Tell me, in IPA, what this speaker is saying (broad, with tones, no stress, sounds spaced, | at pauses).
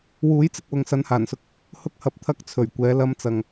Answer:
w uː˨˥ j t͡s ɪ˨ k̚ w ʊ˨ ŋ s ɐ˨˧ n h aː˨˩ n s ʊ˧ k̚ | h ʊ˥ k̚ h ɐ˧ p̚ t̪ʰ ɐ˥ k̚ t͡sʰ ɵ˨˩ ɥ kʷ ɛː˨˥ l ɐ˥ m t͡s ɐ˧ ŋ